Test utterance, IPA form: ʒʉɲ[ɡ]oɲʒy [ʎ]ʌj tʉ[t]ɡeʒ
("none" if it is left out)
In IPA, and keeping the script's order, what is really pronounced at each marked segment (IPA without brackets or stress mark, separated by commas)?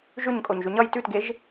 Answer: kʼ, ɲ, t